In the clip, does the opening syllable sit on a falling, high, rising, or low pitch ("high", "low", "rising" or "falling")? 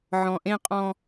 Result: low